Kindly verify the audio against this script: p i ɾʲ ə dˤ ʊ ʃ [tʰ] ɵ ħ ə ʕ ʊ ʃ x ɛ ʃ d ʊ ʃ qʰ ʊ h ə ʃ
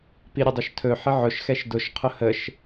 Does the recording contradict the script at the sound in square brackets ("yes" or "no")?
no